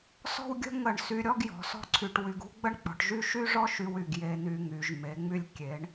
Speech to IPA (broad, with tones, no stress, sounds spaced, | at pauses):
s ɔ̤˥˧ w ɡʲ ə̤˥ ŋ ə˧˩ ɳ s y˧ ɾʲ ɔ˥ ɡ j ɔ̤˩˧ s ɔ̤˥ ǀʰ y˧ ʈ w y˧ ɡ ṳ˥ ɡ͡b ə˥ ɳ k͡p ɔ̤˩˧ ʈ ʒ y˥˧ ʃ y˥ ʐ ɔ˥ ʃ y˧ w y˧˩ ɡ j e˧ n y˧ ŋ y˩˧ ʒ m e˩˧ ŋ͡m y˧ lʲ kʲ e˩˧ ɳ